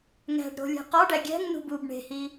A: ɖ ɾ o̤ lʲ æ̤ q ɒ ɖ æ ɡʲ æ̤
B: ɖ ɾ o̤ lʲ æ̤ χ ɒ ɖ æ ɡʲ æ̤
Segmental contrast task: A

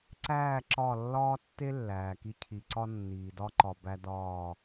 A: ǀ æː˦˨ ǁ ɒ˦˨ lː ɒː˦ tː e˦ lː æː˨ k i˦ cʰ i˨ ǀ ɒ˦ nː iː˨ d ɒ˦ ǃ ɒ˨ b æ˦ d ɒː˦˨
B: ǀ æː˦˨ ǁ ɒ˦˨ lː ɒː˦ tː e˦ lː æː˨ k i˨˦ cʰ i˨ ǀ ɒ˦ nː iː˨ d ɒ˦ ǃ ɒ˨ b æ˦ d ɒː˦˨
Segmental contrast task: A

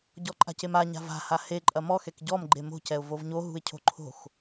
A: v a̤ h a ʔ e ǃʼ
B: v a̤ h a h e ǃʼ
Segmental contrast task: B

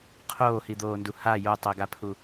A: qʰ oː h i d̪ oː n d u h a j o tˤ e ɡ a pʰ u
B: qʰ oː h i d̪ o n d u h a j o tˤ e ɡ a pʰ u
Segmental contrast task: A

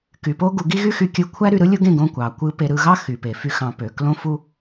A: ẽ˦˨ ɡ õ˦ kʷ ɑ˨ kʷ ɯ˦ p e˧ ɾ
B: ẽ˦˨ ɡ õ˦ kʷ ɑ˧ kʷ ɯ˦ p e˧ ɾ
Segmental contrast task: A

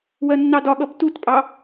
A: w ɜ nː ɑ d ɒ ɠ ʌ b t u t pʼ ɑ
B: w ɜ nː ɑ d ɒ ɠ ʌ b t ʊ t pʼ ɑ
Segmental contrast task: A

